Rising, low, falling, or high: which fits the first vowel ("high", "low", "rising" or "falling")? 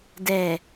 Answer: low